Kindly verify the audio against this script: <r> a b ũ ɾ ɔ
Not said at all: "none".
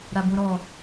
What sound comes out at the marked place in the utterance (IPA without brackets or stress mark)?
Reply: ɾ